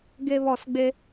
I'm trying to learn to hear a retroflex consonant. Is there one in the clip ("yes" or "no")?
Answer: no